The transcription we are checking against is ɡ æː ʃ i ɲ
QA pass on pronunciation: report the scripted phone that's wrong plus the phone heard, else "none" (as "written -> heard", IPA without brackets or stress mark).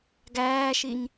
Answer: none